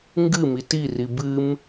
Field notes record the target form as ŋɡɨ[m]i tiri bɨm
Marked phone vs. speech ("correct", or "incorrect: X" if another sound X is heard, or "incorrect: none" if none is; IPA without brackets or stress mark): correct